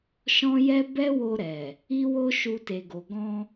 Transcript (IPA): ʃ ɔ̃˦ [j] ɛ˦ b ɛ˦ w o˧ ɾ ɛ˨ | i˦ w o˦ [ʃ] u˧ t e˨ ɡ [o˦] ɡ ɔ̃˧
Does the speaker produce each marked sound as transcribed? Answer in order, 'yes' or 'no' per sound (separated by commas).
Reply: yes, yes, no